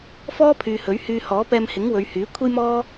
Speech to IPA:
f ɔː˥ pʰ yː˨ h ɵ˨˥ ɥ h yː˧ h ɔː˨˥ p ɛː˧ m h ɪ˨˥ ŋ w ɵ˨˧ ɥ h yː˨˥ kʷʰ e˥ j m ɔː˥

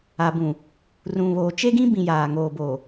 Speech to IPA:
a˨ b ũ˨ | r ũ˨ β oː˨ t͡ʃ e˦ ɡ ĩ˦ b ĩ˨ j aː˨ ŋ oː˨ b oː˨

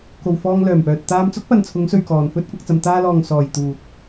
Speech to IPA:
k o˨ w f ɔː˧ ŋ l œː˨˩ m p œː˨ t̚ t̪ aː˧ m t͡s ʊ˥ k̚ p ɐ˨ n t͡sʰ ʊ˨˧ ŋ s ɵ˨ ɥ k ɔː˨ n f ɵ˥ t̚ kʷ ɐ˧ k̚ t͡s ɐ˧ m t̪ aː˧ l ɔː˨ ŋ s ɔː˨ j t̪ uː˨ t̚

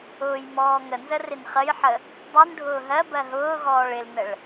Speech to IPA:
ʊː j m ɔː ŋ ə n z ə r ɪ n χ ə j ħ ə | dˤ u n ɖʱ ʊː ɦ ɜ b ɜ ɦ ʊː ɣ ɔː ɭ ɪ l n ə ɭ

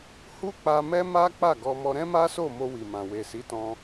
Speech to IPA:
h u˦ k͡p a˧ m ɛ˦ m a˦ k͡p a˦˨ ɡ ɔ˧ m ɔ˧ ɾ ɛ̃˦ m a˦ s o˦˨ m o˧ w i˨ m ã˨ w e˨ s i˨˦ t ɔ̃˧

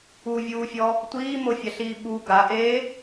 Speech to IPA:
u vʲ uː fʲ ɔ | tʷ iː m o fʲ a ɬ iː ɓ u ɡ a ʔ eː

